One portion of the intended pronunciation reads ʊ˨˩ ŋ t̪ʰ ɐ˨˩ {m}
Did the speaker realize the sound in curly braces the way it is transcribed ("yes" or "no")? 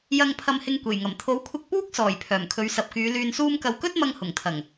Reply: no